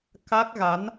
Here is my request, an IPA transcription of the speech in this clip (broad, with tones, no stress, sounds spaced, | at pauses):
k a˦˥ k̚ ɣ a˨˦ n